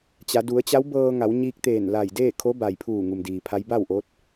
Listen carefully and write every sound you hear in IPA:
t͡ɕ a˩˧ d u˩˧ ə̯ t͡ɕ a˧˥ w b ɤː˧ ŋ a˩˧ w ɲ iː˧ k̚ t̪ eː˧˩ n l a˧˩ j d eː˥˨ kʰ o˧˥ b a˩ j pʰ uː˧˩ ŋ u˩ m d iː˩ pʰ a˧˥ j b a˥˨ w ʔ o˧˥ t̚

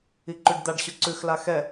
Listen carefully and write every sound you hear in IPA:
i ǃ ʉ ɖ d̪ a ɖ ɕ ʉ ǀ ʉ x l a x ɛ

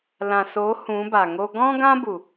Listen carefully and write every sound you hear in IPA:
l ã˨ s o˨˦ h ũ˨˦ b a˨ ŋ o˦ ɡ ɔ̃˦ ɡ ã˦ b u˨

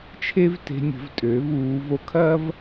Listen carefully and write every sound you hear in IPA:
t͡ʃʰ e˥ v t e̤˧ nʲ ə̤˩˧ v tʼ øː˩˧ v uː˩˧ v o˧˥ kʰ ɐː˥ v

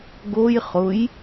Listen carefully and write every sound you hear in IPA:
ɡ o j χ ʊ j

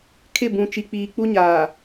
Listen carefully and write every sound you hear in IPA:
kʰ ɪ˦˨ b ũ˨ t͡ʃ i˨ k͡p iː˨ k͡p u˦ ɲ aː˨

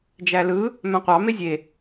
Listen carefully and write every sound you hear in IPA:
d͡ʒ æ l ɯ | m æ̃ qʷ ɑ m e zʲ e

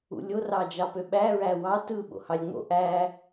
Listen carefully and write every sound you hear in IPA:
ṵ lʲ o r ɑ d͡ʒ ɑ p ø ɓ æ ɹ æ w ɑ t ɯ ɓ o̰ h ɑ lʲ ŋ͡m o̰ ʔ æ

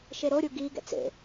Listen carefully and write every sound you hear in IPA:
ʃ e ɾ o ɾʲ u ɡ i ɡ ɛ̰ t͡s ḛ

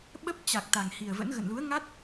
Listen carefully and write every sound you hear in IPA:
ɓ ə˦˥ p̚ t͡ɕ a˨˩ k̚ t̪ a˨˩ ŋ h i˨˩ ə̯ v ə̰˧˥ n ɣ ə̰˧˨ n l u˨˦ ə̯ ŋ a˦˥ t̚

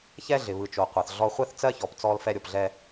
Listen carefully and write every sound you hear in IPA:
ç ɛ˦ ɮ ɪ˨ β ɯ˨ t͡ʃ o˨ qʷ a˨ θ ɮ ɔ˦ χʷ ɛ˦ θ t͡s ɜ˦ ç ɔ˨ p t͡s ɔ˦ l f ɛ˦ ɾʲ o˨ p ɮ ɛ˦

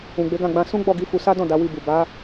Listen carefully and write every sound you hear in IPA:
ũ˨ ɡ͡b e˨˦ ɡ ã˦˨ ɡ͡b ã˧ s ũ˦ ɡ͡b ɔ˦˨ ɡ i˨˦ f u˧ s a˦ d ɔ̃˦˨ d a˨˦ w i˧ b u˨ b a˨˦

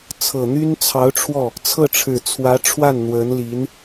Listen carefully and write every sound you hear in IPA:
t͡sʰ ɤ˨˩ n̪ y˥ n t͡sʰ ɑ˧˥ ʊ̯ ʈ͡ʂʰ w ɔ˥˩ | t͡sʰ ɤ˥˩ ʈ͡ʂʰ ɻ̩˨˩ t͡sʰ w ä˧˥ ʈ͡ʂʰ w a˥˩ n n̪ w ə˧˥ n l i˧˥ n

